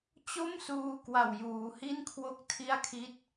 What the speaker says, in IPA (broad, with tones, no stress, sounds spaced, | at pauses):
t͡ɕ o˥˩ m s uː˧ k w a˨˩ w j uː˩˦ h i˥˩ n kʰ w o˦˥ k̚ tʰ i˥˩ a̯ kʰ i˥˩ t̚